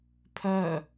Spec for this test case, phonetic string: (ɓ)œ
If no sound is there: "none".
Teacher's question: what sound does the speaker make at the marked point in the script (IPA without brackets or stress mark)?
pʰ